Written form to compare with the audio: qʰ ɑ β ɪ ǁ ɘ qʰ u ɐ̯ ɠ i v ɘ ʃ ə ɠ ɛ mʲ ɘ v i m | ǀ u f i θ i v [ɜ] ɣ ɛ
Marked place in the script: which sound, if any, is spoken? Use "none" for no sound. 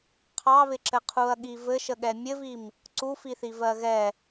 ɜ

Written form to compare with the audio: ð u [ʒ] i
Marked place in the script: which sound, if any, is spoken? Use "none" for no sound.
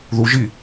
ʒ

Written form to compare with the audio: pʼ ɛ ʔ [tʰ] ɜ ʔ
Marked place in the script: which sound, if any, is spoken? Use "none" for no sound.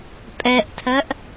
tʰ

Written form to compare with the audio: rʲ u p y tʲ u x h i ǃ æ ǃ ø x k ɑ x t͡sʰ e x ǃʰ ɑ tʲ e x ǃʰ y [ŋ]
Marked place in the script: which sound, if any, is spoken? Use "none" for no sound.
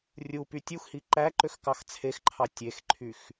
x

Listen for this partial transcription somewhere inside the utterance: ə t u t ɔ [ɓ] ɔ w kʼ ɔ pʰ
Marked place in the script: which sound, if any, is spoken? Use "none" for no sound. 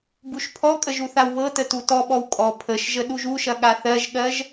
ɓ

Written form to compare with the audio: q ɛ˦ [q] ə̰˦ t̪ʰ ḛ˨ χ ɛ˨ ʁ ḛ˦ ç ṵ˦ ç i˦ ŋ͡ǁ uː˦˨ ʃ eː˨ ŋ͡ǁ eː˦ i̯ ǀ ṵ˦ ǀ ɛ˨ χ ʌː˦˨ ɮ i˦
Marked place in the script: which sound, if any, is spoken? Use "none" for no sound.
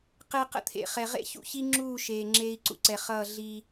q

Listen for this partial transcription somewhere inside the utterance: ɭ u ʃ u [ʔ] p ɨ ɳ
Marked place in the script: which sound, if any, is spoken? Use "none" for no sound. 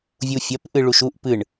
ʔ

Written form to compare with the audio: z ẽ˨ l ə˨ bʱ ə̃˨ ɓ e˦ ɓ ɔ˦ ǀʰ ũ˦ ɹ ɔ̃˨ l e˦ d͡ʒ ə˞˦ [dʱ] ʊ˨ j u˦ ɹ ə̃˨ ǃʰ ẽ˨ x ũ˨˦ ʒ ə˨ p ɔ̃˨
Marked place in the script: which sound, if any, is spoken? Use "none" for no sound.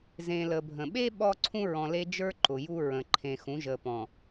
ǃ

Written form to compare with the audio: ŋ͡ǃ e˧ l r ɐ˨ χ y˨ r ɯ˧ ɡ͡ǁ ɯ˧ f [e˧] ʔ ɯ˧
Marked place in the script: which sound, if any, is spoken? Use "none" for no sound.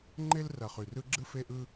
e˧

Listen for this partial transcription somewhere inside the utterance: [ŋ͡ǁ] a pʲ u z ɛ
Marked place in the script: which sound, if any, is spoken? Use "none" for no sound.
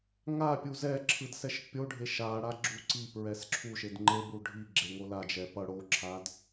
ŋ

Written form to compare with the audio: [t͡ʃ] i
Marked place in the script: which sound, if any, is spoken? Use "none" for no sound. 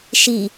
ʃ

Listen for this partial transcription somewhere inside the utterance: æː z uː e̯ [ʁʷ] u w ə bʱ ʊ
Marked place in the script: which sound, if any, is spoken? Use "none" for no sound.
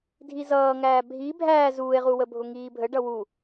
ʁ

